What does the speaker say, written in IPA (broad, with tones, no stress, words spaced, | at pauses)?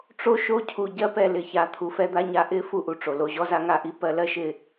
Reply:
ʈ͡ʂo˦ʃo˦ cʰu˨ɟɜ˧pɛ˨ lɪ˨ça˨˦ t̪ʰu˨fɛ˧d̪a˧ɲa˧ ʔɪ˦ fu˧ʔu˨ʈ͡ʂo˨ lo˧ʑɔ˦za˦ ŋa˧ʔi˦ pɜ˧lɜ˦ʃɪ˧